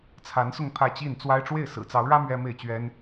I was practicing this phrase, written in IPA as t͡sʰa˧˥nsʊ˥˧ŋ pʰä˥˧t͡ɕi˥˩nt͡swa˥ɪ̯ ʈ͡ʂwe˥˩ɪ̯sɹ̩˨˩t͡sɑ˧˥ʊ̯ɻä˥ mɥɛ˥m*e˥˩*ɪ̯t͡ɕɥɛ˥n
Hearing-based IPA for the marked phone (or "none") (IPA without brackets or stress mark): e˥˩